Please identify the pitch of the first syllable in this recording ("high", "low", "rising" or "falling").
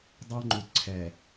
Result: high